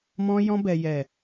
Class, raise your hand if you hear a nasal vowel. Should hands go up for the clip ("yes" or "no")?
yes